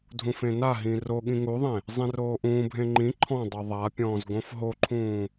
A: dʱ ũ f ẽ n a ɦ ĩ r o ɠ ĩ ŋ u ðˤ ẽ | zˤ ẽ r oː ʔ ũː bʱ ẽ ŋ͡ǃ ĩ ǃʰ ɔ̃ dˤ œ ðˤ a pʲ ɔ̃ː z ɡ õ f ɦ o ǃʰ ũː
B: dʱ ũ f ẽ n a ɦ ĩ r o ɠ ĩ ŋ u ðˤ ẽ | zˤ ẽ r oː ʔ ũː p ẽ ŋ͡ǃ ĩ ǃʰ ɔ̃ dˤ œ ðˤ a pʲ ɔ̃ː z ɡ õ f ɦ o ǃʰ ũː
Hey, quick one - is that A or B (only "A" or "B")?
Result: A